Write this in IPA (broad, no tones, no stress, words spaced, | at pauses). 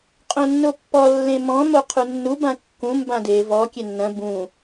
qʼõnːopːɔ lːẽmɔ̃ moqʰunːu bãkːũ mbãde vɔ kʲenːɐ̃ bũ